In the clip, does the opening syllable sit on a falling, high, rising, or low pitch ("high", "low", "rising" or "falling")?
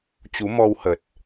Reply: rising